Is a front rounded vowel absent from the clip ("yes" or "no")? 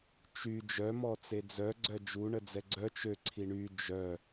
no